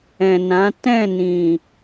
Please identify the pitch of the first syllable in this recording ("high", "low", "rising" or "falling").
low